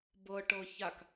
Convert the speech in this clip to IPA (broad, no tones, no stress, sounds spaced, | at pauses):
b ɤ ʈ ɤ ç a k